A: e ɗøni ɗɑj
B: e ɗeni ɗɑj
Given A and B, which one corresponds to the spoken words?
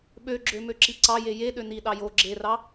A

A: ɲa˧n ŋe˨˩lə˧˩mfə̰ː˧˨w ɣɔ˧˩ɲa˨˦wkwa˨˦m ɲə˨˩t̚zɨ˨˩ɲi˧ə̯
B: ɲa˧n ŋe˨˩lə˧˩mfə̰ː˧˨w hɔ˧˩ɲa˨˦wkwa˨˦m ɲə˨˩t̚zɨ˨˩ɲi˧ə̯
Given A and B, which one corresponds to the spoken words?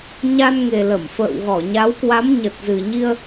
A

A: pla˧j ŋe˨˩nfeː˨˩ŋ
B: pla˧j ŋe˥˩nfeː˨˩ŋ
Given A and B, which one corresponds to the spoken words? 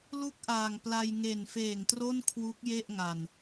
A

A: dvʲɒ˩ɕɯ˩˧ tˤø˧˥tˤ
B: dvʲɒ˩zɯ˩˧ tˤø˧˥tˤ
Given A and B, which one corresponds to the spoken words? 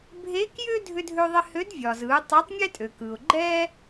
B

